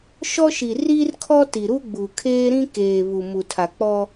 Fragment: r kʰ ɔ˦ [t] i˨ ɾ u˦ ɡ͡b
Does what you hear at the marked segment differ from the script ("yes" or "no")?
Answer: no